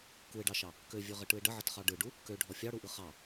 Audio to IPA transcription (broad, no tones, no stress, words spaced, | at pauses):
kuɪ̯ɖɑʃɑ | køvʲøʁəʈɯɪ̯ ɖəʕətχɑ ɖɯɖu | køɖʱɔ fʲɑɽuʔɯ χɑ